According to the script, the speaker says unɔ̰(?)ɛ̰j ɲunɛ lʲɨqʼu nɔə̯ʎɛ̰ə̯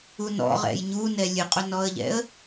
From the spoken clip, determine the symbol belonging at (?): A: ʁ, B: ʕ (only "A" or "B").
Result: A